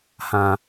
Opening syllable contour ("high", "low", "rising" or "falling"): low